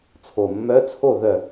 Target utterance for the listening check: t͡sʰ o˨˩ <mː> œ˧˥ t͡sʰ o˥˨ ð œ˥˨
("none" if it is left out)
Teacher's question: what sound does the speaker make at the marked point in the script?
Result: mː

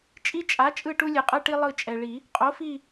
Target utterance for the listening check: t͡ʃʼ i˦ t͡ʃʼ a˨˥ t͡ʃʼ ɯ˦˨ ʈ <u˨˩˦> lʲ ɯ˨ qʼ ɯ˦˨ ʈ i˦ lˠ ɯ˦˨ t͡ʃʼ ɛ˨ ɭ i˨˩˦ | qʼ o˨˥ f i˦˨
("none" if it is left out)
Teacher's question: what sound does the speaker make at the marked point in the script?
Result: u˦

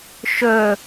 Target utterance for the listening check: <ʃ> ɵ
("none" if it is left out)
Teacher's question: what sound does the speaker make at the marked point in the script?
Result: ʃ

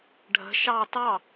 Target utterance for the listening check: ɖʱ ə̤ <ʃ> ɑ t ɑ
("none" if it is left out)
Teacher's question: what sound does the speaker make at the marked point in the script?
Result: ʃ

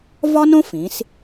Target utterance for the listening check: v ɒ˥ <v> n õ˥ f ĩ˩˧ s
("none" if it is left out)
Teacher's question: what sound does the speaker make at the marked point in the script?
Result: none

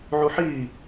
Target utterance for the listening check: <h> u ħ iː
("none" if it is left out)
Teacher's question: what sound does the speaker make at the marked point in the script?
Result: ʕ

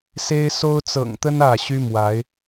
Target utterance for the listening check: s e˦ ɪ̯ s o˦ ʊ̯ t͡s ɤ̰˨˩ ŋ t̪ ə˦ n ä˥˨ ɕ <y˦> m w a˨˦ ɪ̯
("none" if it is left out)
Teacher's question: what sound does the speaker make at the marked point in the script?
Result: y˦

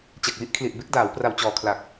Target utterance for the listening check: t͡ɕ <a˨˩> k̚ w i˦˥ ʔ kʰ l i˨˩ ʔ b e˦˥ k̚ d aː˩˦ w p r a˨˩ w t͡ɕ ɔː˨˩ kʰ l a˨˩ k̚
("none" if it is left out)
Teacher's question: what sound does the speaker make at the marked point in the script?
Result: a˨˩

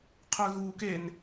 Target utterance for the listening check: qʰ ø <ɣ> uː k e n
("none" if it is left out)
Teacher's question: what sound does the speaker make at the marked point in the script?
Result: ɣ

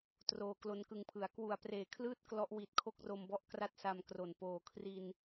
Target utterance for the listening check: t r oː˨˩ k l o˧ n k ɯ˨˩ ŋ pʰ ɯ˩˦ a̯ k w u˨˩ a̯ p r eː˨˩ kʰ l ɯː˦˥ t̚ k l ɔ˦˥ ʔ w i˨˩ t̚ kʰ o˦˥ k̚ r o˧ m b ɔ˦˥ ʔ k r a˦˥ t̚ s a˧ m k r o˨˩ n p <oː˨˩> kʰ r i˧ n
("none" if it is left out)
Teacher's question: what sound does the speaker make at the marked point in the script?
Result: oː˨˩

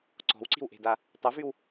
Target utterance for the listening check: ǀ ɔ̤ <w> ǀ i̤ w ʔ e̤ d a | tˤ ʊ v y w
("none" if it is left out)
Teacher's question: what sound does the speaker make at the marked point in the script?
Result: w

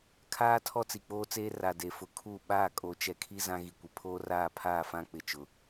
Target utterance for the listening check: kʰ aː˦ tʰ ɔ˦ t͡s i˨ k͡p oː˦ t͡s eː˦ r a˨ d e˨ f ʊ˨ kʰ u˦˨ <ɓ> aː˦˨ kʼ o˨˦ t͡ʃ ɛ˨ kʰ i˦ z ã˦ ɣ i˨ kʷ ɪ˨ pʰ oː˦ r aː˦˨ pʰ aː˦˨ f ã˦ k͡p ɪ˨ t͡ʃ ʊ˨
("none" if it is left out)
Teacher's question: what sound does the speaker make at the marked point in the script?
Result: ɓ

